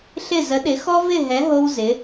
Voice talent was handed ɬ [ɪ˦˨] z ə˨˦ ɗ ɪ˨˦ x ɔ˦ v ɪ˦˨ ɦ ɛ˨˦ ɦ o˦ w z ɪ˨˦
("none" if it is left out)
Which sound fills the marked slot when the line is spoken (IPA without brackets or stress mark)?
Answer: ɪ˦˨